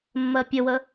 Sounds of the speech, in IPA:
mː ɜ pʲ ə w ə

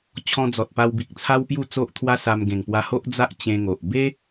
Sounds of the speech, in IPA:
t͡ɕʰ ɔ̃˧ d͡z ɔ˨ t̚ p a˧ w b i˨ k̚ t͡sʰ a˦ w p j u˥˧ t͡s o˦ ʔ t̪ʰ w a˦ s a˧ m ɡ ẽ˨˩ ŋ p w a˧ h o˦ ʔ d͡z a˦ ʔ t͡ɕ ẽ˧ ŋ o˨ ʔ b e˦

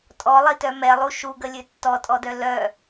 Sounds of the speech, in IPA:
tʼ ɔ lˠ i t œ m ɛ lˠ u ʃ u ɡ ə lʲ ø tː ɔ tʼ ɔ d œ l œ

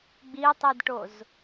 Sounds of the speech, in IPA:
ɡ͡b i tˤ i d ʈ o z

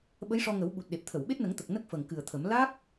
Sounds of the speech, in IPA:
ɓ ə˧˥ j ʂ ɔ˧ ŋ ə˨˩˦ w ɓ u˨˩ t̚ ɗ e˨˩ p̚ t̪ʰ ə˨˩˨ w ɓ e˦˥ t̚ n ə˨˩˦ ŋ t̪ ə˨˩ k̚ n ə˦˥ k̚ f ə˨˩ ŋ k ɨ˨˩ ə̯ t̪ʰ ə˨˩˦ m l a˦˥ k̚

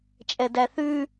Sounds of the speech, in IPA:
t͡ʃʼ ɛ d æ θ ʉ

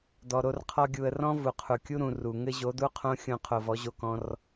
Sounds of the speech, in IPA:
d ɔ˨ ɾ o˧ r qʰ ɔ˧ ɡʲ u˨ ə̯ r ɔ̃˦ v u˨ qʰ u˨ kʲ u˦ ɾ ũ˨ r u˨ ŋ ɘ˦ ʑ o˨˦ d u˦ qʰ õ˦ xʲ õ˧ qʰ o˧ v ɔ˨˦ ʑ o˧ k ɔ̃˧ r

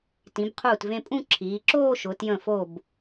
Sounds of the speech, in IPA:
t ĩ˩˧ b qʰ uː˧˩ t v ẽ˧ pʼ ũ˥˧ ǁʰ iː˩˧ ǁ oː˥˧ ʃ ʊ˩˧ t j ə̃˧˩ f o˧˩ b

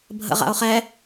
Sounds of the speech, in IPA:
bʱ ə̰ ʁ a̰ o̯ χ ɛ

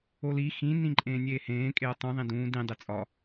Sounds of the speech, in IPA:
o l i x ĩ n ĩ ǃʼ ẽː nʲ eː h ẽː kʼ e ɐ̯ tˤ ũ ðˤ ĩ d ũː d ĩ dˤ e t͡sʼ ɒ

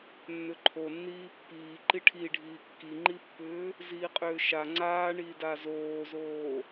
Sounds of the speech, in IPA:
nː ʏ ǃʰ o nː iː pː iː ǃ i ʈʰ i ɖʱ iː kː i ŋ͡ǃ i pː ʏː | z iː qʼ ʏː ʃ a ŋ͡ǀ aː ɳ iː d a z oː z oː

